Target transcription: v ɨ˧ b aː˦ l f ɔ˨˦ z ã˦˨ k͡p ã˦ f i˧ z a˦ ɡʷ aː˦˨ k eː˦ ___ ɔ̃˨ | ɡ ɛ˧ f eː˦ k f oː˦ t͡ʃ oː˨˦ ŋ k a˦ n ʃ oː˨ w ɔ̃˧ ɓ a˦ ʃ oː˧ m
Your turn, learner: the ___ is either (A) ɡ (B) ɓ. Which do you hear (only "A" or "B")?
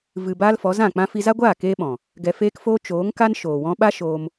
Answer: B